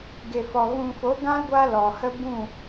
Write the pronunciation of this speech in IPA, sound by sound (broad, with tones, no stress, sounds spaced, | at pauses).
ɡ e˨ f ɔ˨ ɣ ũ˨ f o˨˦ ɡ ã˦ l ɡʷ a˧ l ɔ˨ h ə˦ b ũ˦˨